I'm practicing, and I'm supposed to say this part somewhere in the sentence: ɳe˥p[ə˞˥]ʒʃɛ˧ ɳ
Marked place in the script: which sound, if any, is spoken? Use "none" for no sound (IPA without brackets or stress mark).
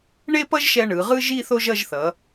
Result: ʌ˥